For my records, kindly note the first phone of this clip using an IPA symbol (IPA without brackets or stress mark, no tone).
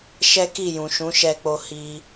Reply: ʃ